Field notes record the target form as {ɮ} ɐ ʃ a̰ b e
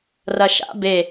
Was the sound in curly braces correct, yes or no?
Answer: no